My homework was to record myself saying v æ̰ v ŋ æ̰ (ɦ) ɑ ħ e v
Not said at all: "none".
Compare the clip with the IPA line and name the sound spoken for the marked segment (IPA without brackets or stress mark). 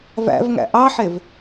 ʔ